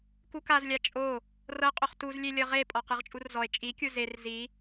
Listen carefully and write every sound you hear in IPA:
k u k a z lʲ a t͡ʃʼ o | r ɤ qʼ o χ t u z lʲ e lʲ ɤ ʁ e pʼ ɔ q ɯ ʁ t͡ʃʼ u r z ɔ e̯ t͡ʃʼ i kʲ u z e r z i

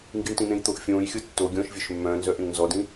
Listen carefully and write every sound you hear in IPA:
ŋ ɡ i ɳ t ĩ n̪ ẽ j t̪ o ʔ fʲ õː j xʲ ɤ tː o ɡʲ ɔ̃ ʃ vʲ œ ʃ mː œ̃ː n z œ ʔ ẽ ŋ n z ɔ d ĩ

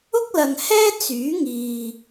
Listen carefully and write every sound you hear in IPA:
ʊ˥ k̚ l ɐ˨ ŋ h ɛː˥ t͡s yː˨˥ ŋ iː˨

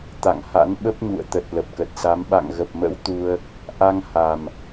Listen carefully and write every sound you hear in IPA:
t̪ a̰˧˨ ŋ h a̰˧˥ n ɓ ə˦˥ p̚ ɲ ṵ˧˨ ə̯ t̪ ə˨˩ t̚ l ə˨˩ p̚ k ə˨˩ t̚ s a˨˦ m ɓ a̰˧˨ ŋ ɣ ə˨˩ p̚ m ə̰˧˥ w t̪ u˧ ə̯ | ʔ a˧ ŋ h a˨˩ m

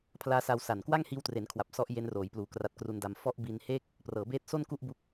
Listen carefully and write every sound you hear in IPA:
pʰ l aː˦˥ s a˧ w s a˨˩ n k w a˥˩ ŋ h iː˧ w t r e˩˦ n kʰ w a˨˩ p̚ s ɔ˦˥ ʔ j e˦˥ n r oː˩˦ j p l uː˨˩ k r a˦˥ t̚ k r u˧ n d a˧ m f ɔ˦˥ ʔ b i˧ n h e˥˩ k̚ | p r ɤː˩˦ b eː˦˥ t̚ s o˥˩ n k u˥˩ ʔ b u˦˥ k̚

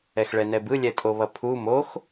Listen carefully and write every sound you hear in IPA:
ɛ x ɭ ɛ n ɛ b ɯ lʲ ɛ tʼ o β ʌ pʰ u m o x

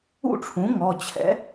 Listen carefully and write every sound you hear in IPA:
ṵ˥˨ ʈ͡ʂʰ ũ˩˥ ŋ ɔ˩˧˩ t͡ɕʰ ɛ̰˩˥

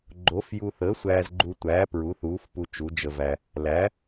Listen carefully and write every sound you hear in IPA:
ɡ͡ǃ o˨˥ f j u˧ θ əː˨˥ sʷ æː˧ z ɡ͡ǃ u˧ tʷ æː˨˥ p ɹ u˨˥ θ uː˨˥ f p u˧ t͡ʃ u˨˥ d͡ʒ ə˧ v æ˧ | l æ˨˥

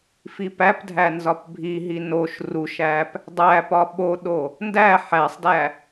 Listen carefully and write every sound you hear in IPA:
f i p æ p dʱ æ n z ɒ p bʱ i ɦ i n o ʃ r u ʃ æ p | dˤ æ p ɒ ɓ o ɗ o | n d æ ħ æ sˤ d æ

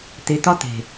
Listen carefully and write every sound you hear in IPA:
t̪ e˨ t̪ ɒ˦ t̪ e̤˨

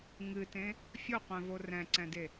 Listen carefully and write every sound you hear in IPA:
ŋ ɨ t ẽ | fʲ o qʷ ɛ̃ v o r ɛ̃ ǀ ɛ̃ d e

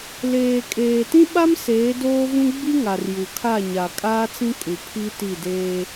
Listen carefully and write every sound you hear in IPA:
l eː˨ kʼ eː˨ t ĩ˦ ɓ a˦ m s eː˨˦ d oː˦ v ũ˦ ɡ͡b i˦ ŋ a˨ r j u˨ kʰ a˦˨ ɲ a˨ kʼ aː˦ t͡s ĩ˦ kʼ u˨ pʰ i˦ t i˦˨ d eː˦

